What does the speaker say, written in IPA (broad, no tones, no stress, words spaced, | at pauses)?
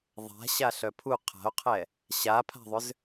ðˤa̤ɕaɬœ pʰu qʰa̤o̯qʰɛ | ɕapʰa̤ðˤʏz